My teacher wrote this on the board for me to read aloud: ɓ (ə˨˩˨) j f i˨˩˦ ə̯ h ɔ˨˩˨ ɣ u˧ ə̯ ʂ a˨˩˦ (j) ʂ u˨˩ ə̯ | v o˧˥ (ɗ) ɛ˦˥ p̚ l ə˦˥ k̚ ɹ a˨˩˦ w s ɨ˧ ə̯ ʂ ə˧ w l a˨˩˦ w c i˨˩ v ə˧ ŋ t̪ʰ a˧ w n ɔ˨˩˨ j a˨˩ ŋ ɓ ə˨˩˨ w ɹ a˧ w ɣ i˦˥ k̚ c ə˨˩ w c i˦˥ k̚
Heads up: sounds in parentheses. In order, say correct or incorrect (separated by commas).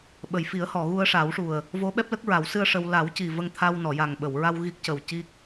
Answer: correct, incorrect, incorrect